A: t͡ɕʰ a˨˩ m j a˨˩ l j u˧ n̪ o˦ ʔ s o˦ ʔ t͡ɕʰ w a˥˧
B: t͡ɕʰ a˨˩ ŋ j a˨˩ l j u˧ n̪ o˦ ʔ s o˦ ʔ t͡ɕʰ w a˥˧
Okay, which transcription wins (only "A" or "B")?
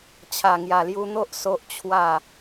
B